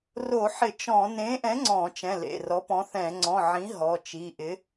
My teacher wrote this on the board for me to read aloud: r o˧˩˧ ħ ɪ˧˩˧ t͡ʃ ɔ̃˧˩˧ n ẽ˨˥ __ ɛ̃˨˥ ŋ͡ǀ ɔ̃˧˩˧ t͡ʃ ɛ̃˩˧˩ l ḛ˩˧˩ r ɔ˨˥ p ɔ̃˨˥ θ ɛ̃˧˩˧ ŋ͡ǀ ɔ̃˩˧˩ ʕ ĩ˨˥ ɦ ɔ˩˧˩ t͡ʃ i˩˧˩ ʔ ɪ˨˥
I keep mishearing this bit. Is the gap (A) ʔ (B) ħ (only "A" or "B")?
A